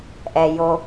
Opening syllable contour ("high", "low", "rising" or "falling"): low